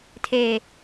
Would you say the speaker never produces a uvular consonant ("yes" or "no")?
yes